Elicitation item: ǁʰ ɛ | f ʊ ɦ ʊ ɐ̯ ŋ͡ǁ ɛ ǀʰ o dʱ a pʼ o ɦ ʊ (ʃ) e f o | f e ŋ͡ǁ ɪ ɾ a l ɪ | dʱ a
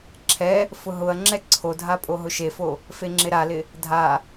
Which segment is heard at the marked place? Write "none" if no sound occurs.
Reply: ʃ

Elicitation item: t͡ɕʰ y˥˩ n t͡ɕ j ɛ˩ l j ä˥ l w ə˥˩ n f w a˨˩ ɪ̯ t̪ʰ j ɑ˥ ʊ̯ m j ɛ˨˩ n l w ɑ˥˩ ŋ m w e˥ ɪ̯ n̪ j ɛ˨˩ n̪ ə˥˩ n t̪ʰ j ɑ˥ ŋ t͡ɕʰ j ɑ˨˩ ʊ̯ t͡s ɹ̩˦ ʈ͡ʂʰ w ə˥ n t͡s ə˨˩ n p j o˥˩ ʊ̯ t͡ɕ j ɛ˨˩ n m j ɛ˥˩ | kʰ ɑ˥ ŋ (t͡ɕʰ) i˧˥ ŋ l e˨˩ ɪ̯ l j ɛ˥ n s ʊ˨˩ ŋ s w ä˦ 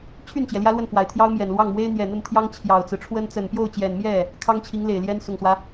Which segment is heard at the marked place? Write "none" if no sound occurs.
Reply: t͡ɕʰ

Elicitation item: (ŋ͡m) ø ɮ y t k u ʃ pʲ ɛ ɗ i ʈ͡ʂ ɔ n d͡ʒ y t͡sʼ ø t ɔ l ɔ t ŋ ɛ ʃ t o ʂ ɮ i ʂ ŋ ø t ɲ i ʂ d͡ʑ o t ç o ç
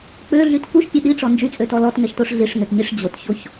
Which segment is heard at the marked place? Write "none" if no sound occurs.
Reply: k͡p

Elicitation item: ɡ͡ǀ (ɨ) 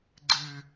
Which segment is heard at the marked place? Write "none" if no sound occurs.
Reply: ɨ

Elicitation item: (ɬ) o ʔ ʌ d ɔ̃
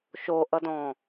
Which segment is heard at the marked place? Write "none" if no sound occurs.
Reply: ʃ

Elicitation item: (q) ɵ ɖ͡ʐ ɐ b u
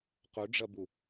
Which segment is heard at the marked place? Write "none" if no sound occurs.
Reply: q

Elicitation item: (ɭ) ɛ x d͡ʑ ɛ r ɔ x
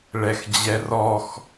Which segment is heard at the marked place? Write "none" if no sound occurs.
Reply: ɭ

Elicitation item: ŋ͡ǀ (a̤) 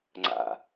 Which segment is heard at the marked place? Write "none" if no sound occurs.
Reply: a̰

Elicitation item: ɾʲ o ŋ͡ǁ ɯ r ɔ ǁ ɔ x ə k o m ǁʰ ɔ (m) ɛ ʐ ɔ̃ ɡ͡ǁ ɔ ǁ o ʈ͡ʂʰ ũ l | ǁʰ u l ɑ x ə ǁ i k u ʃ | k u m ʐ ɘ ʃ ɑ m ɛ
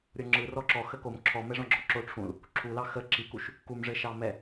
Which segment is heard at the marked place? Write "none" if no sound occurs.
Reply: m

